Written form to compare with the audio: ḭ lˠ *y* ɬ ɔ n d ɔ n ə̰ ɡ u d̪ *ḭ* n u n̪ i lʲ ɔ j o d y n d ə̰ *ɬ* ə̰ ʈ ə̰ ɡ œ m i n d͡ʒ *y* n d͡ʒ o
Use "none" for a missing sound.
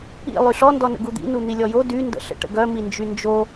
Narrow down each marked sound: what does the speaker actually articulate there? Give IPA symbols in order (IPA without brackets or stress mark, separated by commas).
y, ḭ, ɬ, y